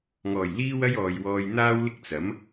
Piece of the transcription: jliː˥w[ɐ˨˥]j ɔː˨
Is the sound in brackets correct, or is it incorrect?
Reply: incorrect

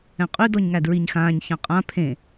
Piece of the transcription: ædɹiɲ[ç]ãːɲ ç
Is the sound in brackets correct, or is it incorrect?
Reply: incorrect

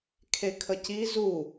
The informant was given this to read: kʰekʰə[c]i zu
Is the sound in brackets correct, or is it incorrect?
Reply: correct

